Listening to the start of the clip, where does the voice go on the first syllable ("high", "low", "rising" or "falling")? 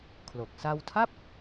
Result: low